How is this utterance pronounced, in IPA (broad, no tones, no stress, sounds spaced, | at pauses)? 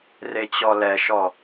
r e t͡ɕ ɔ l ɛ ʃ ɔ